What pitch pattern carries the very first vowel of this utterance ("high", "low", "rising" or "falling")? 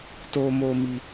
high